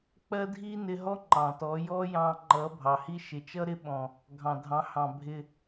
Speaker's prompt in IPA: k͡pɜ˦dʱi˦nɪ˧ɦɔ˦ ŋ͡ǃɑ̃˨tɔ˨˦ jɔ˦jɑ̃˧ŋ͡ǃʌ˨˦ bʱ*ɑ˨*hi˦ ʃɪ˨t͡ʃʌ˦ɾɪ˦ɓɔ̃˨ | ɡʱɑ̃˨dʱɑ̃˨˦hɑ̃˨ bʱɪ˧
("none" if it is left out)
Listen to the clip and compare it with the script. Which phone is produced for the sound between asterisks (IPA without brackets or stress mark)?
ɑ˨